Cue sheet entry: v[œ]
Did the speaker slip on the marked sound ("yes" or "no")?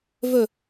yes